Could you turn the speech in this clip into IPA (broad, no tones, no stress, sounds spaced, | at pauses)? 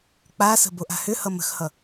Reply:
k͡p a s ə̤ b o ʔ a̤ h ʏ h ʌ m ə̤ x h ʌ